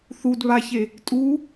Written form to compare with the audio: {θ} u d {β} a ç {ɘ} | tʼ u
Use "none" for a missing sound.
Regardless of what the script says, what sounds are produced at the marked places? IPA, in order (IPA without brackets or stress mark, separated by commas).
θ, β, e